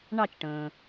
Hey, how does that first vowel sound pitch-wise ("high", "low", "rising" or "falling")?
falling